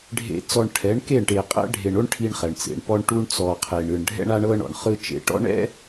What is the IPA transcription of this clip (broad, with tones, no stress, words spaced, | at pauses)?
ɖʱḛ˨t͡sɔ˨ɳ ʈʰɛ˨˦ɳke˦˨ɳʈe˨ qʼɛ̰˦ɖʱe˨ɳo˦ɳ ʈʰi˦ɳχɛ˨ɳt͡sḛ˨ɳ pɔ˦ɳʈu˦ɳt͡sɔ˨qʰe˨ɳ ɯ˨ɳ ɖʱɛ̰˦ɳa˦ɳɤ˦ ɳɔ̰˨ɳχɯ˦t͡ʃḛ˨˦ ʈɔ̰˦ɳɛ̰˦